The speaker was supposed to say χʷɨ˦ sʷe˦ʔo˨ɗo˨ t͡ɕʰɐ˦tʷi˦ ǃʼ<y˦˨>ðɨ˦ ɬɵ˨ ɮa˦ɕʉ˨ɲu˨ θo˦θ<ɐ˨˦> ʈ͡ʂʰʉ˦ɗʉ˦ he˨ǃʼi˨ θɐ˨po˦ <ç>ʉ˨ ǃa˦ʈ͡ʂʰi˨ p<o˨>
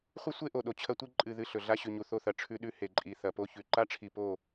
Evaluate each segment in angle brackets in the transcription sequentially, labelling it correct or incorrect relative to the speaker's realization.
incorrect: ɨ˦˨, incorrect: ɐ˨, correct, incorrect: o˦˨

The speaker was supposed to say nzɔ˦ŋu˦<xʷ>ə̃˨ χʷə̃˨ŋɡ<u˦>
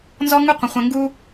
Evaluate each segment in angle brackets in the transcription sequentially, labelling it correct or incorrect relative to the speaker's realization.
incorrect: qʷ, correct

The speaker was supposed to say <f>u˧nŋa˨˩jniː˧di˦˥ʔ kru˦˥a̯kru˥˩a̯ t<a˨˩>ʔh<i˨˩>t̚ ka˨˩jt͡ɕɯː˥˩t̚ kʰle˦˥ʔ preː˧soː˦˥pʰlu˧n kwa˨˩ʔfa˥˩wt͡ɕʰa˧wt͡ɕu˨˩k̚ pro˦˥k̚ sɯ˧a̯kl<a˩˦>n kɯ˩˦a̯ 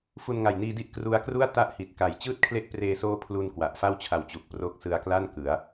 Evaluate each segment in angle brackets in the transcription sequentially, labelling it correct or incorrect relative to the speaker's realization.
correct, incorrect: a˦˥, correct, incorrect: a˥˩

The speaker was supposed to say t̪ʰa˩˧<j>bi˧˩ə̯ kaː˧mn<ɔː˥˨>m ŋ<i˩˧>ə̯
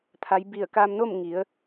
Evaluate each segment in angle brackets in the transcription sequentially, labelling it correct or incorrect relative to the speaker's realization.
correct, incorrect: oː˥˨, correct

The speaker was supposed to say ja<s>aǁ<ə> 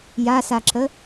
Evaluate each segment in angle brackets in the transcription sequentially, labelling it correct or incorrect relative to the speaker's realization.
correct, correct

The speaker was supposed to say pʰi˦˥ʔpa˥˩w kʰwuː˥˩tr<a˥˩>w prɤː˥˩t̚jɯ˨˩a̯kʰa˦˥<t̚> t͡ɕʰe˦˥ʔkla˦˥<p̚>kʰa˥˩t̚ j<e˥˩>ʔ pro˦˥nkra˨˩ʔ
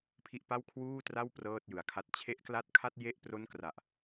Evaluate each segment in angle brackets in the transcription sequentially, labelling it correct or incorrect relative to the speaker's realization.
correct, correct, incorrect: t̚, correct

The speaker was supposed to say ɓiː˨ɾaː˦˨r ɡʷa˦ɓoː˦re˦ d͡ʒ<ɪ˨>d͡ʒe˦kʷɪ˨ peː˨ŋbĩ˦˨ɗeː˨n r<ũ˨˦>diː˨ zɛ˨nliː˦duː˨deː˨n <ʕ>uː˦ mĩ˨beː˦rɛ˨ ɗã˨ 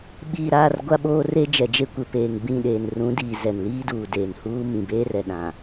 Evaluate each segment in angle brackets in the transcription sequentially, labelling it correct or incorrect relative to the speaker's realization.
incorrect: ɛ˨, correct, incorrect: h

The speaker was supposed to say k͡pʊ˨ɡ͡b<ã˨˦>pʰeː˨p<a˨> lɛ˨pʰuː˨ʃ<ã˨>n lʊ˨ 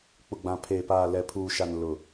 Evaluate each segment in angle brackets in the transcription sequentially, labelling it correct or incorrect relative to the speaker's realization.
incorrect: ã˨, incorrect: aː˨, incorrect: a˨

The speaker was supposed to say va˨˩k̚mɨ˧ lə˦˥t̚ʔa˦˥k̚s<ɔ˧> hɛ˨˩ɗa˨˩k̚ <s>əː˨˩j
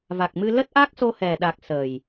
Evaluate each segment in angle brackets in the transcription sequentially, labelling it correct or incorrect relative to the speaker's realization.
incorrect: o˧, correct

